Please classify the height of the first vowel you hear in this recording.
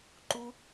high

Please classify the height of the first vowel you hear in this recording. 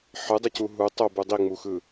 high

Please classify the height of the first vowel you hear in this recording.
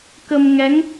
mid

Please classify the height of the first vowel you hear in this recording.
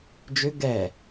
high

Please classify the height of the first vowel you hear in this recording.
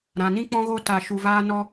low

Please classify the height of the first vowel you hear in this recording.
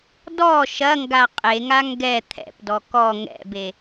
mid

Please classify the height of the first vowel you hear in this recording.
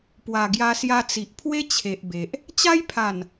low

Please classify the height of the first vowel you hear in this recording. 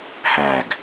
low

